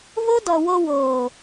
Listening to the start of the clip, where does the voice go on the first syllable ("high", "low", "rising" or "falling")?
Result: high